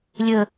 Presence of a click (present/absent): absent